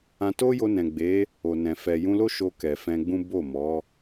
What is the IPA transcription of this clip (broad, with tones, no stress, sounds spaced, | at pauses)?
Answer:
ã˧ t o˦ j o˧ n ɛ̃˨ ɡ͡b e˨˦ | o˨ n ɛ̃˨ f ɛ˨ j ũ˧ l o˦ ʃ o˧ k ɛ˨ f ɛ̃˧ ɡ͡b ũ˦ b o˦˨ m ɔ˨˦